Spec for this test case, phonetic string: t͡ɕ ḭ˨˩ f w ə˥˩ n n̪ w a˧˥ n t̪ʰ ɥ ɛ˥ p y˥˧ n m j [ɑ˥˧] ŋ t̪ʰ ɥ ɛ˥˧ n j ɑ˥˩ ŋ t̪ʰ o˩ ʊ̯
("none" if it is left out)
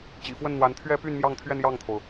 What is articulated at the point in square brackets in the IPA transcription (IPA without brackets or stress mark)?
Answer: ɑ˥˧